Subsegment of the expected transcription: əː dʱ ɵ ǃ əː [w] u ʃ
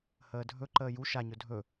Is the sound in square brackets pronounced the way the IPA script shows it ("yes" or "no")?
no